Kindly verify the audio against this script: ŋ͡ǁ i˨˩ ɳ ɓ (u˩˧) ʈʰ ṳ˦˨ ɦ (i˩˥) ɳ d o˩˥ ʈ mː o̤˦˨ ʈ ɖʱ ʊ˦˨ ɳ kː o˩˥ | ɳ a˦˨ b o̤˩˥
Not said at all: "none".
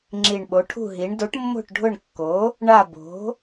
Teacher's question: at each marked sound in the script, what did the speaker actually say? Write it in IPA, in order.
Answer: o˩˧, i˩˧

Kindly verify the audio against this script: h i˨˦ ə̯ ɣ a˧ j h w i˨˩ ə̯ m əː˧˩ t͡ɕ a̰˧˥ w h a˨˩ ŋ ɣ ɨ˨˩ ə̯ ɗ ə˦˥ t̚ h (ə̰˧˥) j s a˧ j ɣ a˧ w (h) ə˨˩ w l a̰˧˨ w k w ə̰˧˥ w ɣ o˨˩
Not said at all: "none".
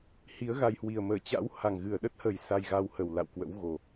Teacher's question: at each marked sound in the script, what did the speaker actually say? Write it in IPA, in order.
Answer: ə˨˩, h

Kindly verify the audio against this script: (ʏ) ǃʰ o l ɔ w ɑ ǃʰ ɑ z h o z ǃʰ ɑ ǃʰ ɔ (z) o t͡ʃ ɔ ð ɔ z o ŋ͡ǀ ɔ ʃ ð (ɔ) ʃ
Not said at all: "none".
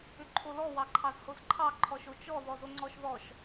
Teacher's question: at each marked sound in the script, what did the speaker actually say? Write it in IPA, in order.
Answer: ʏ, ʃ, ɔ

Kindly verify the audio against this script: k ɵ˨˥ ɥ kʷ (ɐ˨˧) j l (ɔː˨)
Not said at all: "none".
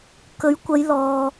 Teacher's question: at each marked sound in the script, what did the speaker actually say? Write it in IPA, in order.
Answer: ɐ˨˧, ɔː˨

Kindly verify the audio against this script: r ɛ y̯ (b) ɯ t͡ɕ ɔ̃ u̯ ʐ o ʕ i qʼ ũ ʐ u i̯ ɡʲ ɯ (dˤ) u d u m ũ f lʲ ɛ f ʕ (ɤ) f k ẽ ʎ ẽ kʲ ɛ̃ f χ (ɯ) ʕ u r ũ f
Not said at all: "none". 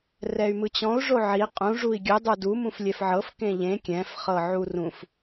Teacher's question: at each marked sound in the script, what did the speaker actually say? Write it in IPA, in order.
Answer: m, dˤ, ɤ, ɤ

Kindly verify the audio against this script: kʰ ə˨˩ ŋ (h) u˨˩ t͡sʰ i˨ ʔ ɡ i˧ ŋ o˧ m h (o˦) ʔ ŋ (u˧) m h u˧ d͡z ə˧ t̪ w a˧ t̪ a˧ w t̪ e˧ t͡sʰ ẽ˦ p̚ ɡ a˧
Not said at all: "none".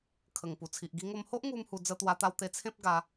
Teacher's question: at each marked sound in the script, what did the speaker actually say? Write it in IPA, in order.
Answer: p, o˦, u˧

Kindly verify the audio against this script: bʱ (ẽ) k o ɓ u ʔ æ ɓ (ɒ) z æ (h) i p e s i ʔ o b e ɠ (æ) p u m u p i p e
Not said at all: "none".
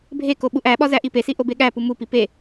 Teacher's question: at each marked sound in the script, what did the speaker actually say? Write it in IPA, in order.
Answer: e, ɒ, ʔ, æ

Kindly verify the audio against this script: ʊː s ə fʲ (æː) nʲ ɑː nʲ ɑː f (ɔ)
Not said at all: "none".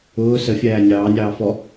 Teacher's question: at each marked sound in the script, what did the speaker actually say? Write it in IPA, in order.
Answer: æː, ɔ

